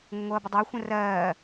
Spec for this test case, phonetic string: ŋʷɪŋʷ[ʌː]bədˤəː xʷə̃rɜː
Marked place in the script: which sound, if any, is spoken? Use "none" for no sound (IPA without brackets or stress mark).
ʌː